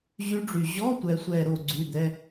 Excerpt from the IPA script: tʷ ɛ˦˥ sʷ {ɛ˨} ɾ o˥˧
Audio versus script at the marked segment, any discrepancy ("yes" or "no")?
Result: yes